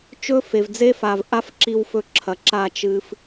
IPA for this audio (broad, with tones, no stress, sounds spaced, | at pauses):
t͡ʃ ɵ˦ f e˨ v d͡z e˦ f a˨ v ʔ a˦ f ǁ i˧ w f ɵ˧ ǁʰ ɐ˨ ǁ a˦˨ t͡ʃ ɨ˦ f